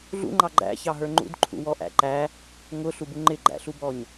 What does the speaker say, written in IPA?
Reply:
ɮ ṵ ŋ͡ǃ ɑ ɡ͡ǃ æ̰ ç ɑ ɦ ə˞ ŋ͡ǃ ṵ d ǃʰ ṵ w ɔ ʔ æ̰ ǃ æ | ŋ ʊ ɬ u b u ŋ͡ǃ ɪ ɡ͡ǃ æ̰ ɬ u b ɔ ɲ

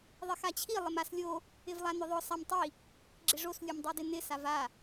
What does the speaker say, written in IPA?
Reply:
ðˤ ɪ x a t͡ɕʰ i lˠ ɪ m a s lʲ o | ɪ v lˠ a n ʊ ðˤ ʊ sˤ a m tˤ i | ɡ͡ǁ ɪ ʐ o s lʲ u m dˤ o d ɪ n ɪ s a v a

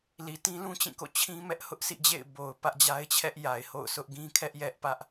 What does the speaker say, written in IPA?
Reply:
l i˨ t ĩ˦ l ũ˦ t͡ɕ ĩ˦˨ k o̰˦˨ t͡ɕʰ ĩ˦ m ɛ˦ ʔ h ʊ˦ ʔ sʰ ḭ˦˨ d͡ʑ ḛ˦˨ ɪ̯ b o˨ ʊ̯ p ä˦ ʔ d͡ʑ a˦ ɪ̯ t͡ɕʰ ɛ˦ ʔ j a˨ ɪ̯ h o̰˦˨ ʊ̯ s ʊ˦ ʔ ɡ ĩ˦ kʰ ɛ˦ ʔ j ɛ˦ ʔ p ä˦ ʔ

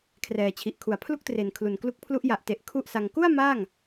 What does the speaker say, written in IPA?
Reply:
kʰ r ɛː˨˩ t͡ɕʰ i˨˩ ʔ kʰ u˨˩ a̯ pʰ l u˥˩ k̚ t r e˨˩ n kʰ l u˨˩ n k l u˦˥ k̚ pʰ l u˦˥ ʔ j a˨˩ ʔ t e˨˩ ʔ kʰ u˥˩ ʔ s a˧ ŋ k u˥˩ a̯ m aː˥˩ ŋ

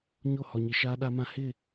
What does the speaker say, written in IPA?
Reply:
ɲ o˦˨ h ɔ˨ ɲ i˨ ʃ aː˦ ɗ a˦ m ã˦ h ɪ˦˨

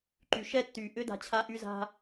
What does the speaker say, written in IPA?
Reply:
ǃ y˩ ʃ ɛ˥ tː y˩ ʔ ʏ˥ d a̤˧ t͡ɕʰ a˥ ʔ y˥ z a̤˥

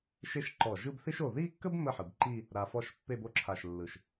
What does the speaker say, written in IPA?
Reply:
ʃ e˥˧ ʃ ǃ ɔ˧˩ ʒ ɯ˥˧ b θ i˥ ʃ o˧˩ ð i˥˧ kː ə˥ b m ə˥˧ ħ ɯ˩˧ b ǃ i˥˧ | ɾ a˧ f ɔ˥˧ ʃ pː e˥˧ b o˥ ǁʰ a˧˩ ʃ lː ɯ˧˩ ʃ

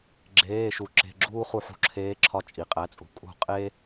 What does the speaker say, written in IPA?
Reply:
ɡ͡ǁ eː˩˧˩ ʃ u˩ ǁ e̤˩˧˩ ɡ͡ǁ uː˦ χ u˧˩˧ ħ ṳ˦ ǁʰ eː˨˥ ǁʰ ɒ˨˥ t͡ʃʼ i˩ qʼ æ˩˧˩ t͡sʼ ṳ˩ kʼ ṳ˧˩˧ qʼ e˦

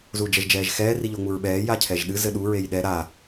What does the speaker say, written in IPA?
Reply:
z u d͡ʒ ɛ ʒ d͡ʒ ɛː ʒ x ɛː r i ʎ o ŋ͡m u ɹ ɓ ɛː j a cʰ ɛ ʒ ɗ ɨ z ɘ ɗ u ɹ e j ɗ ɛ ɾ a

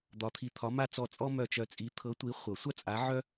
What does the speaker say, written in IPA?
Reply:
d̪ ɒ˧˥ t̪ʰ i˦˨ t̪ʰ ɒ˧˥ m a˥ t͡s ɔ˦˨ t͡sʼ ɔ˥ m œ˦˨ t͡ʃ œ˧˥ t͡sʼ i˧˥ t̪ʰ ɤ˧˥ tʷ i˧˥ χʷ ɤ˨˩˦ sʷ a˥ t͡sʼ a˧˥ ʕ œ˥

